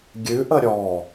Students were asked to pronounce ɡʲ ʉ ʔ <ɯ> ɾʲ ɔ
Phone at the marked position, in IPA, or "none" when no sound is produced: ə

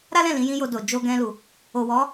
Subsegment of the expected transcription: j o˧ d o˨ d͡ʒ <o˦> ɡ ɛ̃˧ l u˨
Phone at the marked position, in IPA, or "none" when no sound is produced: o˧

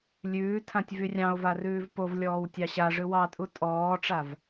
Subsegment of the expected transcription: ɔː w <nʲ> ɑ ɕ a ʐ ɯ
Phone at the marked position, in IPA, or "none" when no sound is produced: tʲ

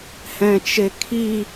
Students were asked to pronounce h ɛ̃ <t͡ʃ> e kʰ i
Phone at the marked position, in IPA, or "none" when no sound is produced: t͡ʃ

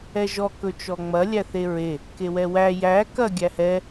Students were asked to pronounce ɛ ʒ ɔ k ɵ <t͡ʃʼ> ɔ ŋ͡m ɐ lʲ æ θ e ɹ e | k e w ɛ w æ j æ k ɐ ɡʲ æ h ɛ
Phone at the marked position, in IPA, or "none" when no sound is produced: t͡ʃ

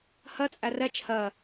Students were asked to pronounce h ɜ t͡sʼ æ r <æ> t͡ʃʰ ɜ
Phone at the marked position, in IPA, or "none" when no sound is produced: ɛ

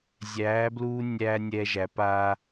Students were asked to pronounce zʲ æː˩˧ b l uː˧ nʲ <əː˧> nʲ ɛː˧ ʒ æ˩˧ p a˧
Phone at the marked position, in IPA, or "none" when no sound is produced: æː˧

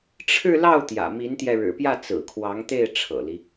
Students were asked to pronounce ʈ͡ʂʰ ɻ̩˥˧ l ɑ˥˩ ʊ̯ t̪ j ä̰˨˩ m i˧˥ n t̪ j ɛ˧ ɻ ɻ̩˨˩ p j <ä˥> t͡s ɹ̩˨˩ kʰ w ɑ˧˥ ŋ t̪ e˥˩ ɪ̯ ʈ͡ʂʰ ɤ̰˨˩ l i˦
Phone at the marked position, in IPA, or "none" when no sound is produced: ä˥˩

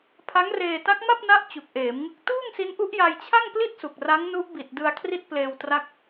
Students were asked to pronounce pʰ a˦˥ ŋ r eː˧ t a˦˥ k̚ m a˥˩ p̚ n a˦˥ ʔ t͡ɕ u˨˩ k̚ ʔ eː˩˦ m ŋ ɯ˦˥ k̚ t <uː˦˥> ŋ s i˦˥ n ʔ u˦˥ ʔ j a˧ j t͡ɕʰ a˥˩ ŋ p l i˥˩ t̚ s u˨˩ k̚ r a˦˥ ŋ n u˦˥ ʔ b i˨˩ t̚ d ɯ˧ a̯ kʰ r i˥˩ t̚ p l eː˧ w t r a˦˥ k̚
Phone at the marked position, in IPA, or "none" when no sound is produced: uː˥˩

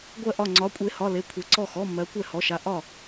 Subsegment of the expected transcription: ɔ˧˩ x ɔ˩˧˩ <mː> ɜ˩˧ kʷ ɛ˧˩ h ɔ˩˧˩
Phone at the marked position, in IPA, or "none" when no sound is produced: mː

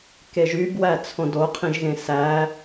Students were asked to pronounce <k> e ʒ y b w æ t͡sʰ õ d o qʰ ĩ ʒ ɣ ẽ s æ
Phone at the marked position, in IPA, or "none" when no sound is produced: k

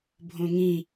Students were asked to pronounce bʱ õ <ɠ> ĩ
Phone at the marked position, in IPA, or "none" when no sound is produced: ŋ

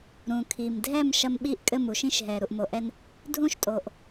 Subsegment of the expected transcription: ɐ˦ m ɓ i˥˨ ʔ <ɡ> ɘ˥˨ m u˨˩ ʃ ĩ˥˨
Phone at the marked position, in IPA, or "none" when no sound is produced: kʼ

